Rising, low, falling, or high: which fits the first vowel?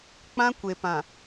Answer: high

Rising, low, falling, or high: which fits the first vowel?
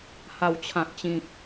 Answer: low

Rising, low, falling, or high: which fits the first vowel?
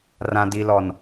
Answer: low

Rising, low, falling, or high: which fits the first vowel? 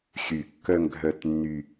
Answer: low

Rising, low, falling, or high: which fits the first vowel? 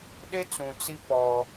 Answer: high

